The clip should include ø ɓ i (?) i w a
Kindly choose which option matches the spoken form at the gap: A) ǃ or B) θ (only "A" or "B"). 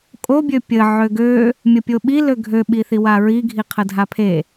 B